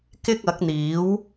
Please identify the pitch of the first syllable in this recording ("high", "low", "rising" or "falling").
high